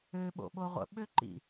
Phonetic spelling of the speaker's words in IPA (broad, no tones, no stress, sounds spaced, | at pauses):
ø ɓ o̰ ɓ o ʁʷ ə̰ ɓ ø ǃ ḭ